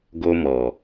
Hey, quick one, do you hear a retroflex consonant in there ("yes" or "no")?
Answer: no